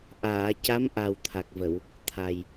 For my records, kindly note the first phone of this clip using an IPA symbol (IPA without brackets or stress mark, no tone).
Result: ʔ